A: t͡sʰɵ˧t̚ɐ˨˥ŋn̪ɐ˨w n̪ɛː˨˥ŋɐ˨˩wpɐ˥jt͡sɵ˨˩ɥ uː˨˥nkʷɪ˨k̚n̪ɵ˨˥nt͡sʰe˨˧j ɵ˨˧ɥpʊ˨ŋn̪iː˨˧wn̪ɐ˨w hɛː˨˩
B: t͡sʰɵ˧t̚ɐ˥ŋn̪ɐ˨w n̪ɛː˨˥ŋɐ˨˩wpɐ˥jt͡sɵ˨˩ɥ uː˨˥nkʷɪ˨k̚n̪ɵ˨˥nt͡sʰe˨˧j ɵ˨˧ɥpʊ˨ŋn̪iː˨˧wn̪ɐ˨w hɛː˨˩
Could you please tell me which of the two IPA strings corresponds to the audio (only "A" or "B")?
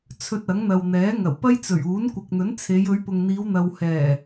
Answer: A